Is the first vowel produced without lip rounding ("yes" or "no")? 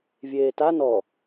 yes